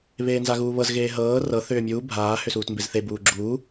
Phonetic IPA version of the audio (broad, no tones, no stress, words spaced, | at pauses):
βeːnzaɣuːβɤz ɣeːɦɤː rɤ θʏːmʲuː bʱaː hʏsuːtmbezθe buːɡ͡ǁuː